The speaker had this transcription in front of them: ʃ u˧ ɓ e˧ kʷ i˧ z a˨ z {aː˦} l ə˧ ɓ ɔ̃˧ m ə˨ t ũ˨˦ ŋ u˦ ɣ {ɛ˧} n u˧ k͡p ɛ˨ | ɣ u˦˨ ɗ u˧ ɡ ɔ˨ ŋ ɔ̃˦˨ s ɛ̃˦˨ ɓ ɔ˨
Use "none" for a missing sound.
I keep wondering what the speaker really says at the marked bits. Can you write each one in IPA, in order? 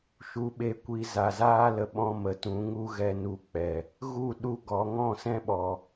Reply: aː˦, ɛ˧

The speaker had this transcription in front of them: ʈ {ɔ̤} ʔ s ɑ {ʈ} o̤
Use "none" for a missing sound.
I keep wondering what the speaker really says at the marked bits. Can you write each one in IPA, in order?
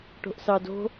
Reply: o̤, d

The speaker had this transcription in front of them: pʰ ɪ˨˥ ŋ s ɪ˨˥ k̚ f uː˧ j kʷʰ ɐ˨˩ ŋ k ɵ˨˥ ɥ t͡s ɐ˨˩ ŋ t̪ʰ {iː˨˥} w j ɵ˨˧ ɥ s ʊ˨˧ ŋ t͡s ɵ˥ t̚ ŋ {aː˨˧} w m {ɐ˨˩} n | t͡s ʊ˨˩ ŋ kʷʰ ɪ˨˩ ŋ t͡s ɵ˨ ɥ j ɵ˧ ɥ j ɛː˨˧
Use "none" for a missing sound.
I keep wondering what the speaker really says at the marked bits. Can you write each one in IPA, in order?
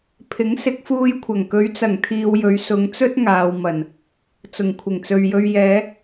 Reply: iː˧, aː˨, ɐ˨˩

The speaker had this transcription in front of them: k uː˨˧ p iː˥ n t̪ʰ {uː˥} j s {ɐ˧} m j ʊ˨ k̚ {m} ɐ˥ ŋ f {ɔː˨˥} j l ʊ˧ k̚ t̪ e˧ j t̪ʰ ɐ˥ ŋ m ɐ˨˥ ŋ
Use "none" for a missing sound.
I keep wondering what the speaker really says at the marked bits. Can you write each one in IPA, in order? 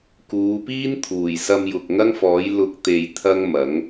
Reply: uː˨˩, ɐ˧, ŋ, ɔː˨˥

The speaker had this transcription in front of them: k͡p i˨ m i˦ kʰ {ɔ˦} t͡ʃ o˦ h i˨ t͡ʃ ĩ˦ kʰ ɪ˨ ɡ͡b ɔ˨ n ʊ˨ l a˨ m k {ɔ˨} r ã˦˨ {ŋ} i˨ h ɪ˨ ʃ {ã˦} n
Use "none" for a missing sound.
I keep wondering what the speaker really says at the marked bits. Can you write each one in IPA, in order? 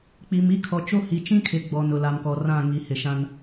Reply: ɔ˨, ɔ˨, ŋ, ã˦

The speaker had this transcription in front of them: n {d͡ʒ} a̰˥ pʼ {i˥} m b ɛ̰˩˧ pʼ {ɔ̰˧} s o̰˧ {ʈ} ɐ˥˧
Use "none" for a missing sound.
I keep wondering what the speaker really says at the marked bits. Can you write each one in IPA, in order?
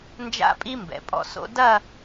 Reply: d͡ʒ, i˥, ɔ̰˧, d

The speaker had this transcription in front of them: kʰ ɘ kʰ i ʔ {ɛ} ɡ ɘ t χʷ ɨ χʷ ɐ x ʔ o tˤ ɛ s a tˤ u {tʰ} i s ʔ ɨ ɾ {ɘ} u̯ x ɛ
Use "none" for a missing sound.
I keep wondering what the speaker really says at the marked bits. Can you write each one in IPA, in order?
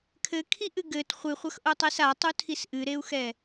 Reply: ɨ, tʰ, e

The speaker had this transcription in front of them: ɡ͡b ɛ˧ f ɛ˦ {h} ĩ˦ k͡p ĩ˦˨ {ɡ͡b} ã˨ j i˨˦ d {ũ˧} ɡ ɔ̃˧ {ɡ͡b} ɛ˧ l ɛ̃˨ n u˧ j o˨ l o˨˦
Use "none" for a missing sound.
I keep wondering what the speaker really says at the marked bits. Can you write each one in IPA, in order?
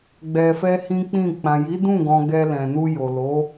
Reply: h, k͡p, ũ˦˨, ɡ

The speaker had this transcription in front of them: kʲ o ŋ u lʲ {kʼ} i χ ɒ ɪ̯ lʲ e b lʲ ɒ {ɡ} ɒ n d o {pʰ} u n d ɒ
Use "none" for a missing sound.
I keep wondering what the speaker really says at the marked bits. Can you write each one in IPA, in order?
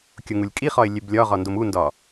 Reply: kʼ, ʁ, m

